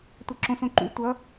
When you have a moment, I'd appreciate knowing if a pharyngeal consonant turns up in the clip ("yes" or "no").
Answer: no